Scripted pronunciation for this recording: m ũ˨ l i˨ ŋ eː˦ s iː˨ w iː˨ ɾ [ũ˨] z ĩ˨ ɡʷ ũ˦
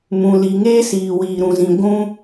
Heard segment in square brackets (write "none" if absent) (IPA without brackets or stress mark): ũ˨